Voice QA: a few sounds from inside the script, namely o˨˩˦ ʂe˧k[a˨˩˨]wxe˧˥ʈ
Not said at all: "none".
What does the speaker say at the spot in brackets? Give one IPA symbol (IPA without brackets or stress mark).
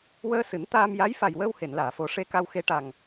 a˧